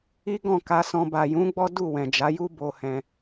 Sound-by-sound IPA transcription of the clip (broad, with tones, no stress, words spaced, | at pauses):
i˦ɡɔ̃˦˨ka˧sɔ̃˧ ba˨jũ˨˦ɡ͡bɔ˦ du˦˨wɛ̃˨d͡ʒa˨˦ju˦ bo˧ hɛ̃˧